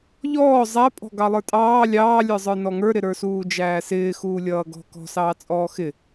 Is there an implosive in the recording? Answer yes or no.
no